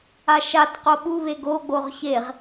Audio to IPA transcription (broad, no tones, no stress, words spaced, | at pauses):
aʃat qoɓu βeɡo ɡ͡boʁçeʁ